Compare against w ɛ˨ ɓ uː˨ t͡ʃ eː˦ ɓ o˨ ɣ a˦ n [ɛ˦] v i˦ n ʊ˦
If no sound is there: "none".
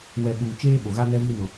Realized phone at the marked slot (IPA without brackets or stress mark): ɛ˦